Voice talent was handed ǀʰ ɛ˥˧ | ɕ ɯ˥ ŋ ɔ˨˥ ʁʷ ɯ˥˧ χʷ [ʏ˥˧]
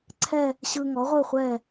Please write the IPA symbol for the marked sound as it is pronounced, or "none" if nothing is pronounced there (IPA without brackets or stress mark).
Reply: ɛ˥˧